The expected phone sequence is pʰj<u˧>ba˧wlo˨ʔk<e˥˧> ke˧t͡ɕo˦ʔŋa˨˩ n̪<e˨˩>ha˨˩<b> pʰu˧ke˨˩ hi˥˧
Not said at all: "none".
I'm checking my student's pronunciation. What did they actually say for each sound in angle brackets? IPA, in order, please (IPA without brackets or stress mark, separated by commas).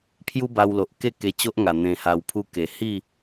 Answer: u˦, e˥˧, ẽ˨˩, w